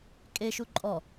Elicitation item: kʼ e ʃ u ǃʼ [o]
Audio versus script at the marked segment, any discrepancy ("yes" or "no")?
yes